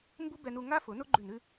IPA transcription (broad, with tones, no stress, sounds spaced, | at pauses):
m b u˦ b ɛ˧ n u˧ ŋ a˦ f ʊ˨˦ n ʊ˦ ɡ͡ǃ ʉ˦˨ n ʉ˦